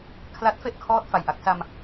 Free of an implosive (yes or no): yes